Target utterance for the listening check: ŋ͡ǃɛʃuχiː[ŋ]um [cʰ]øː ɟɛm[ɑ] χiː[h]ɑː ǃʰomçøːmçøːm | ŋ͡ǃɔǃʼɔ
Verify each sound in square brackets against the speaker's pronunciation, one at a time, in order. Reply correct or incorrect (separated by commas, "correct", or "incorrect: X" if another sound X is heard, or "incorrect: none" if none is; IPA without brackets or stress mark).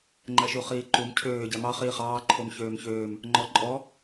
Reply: incorrect: ǃ, correct, correct, incorrect: χ